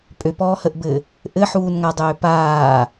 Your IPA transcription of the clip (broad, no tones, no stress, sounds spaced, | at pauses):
pʼ ø p ɔː h ə ʔ b ɘ | ʔ ɘ ħ uː n ŋ a dˤ øː p aː